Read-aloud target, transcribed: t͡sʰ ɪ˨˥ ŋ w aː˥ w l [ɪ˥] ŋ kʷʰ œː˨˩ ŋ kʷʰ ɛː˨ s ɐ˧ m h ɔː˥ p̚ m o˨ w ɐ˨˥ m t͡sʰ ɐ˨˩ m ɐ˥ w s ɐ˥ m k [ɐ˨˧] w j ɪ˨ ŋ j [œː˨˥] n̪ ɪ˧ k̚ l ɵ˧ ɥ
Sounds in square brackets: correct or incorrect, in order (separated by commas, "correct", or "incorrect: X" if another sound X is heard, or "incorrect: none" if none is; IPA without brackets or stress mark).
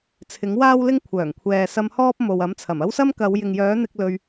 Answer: correct, correct, correct